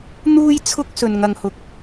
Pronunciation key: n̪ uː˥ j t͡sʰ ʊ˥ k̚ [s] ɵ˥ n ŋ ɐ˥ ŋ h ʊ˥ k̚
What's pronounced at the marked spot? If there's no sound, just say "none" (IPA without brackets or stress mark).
s